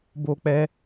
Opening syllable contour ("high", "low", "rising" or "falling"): high